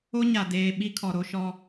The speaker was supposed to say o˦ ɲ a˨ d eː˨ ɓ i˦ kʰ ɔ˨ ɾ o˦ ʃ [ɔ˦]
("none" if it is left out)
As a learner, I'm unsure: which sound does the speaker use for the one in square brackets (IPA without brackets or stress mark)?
ɔ˦